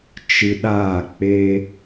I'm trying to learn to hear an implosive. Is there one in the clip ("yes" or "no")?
yes